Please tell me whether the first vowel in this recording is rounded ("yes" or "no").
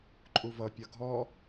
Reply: yes